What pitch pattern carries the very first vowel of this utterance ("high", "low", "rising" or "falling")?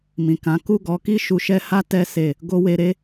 low